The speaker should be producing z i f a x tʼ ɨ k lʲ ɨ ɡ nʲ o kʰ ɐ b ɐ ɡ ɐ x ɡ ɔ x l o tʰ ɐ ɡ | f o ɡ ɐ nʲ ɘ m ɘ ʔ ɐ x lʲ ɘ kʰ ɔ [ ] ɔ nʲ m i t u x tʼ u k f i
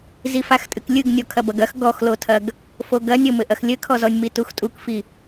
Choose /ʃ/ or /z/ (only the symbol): z